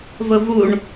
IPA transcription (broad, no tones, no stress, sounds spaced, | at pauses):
v ʊ v u ɳ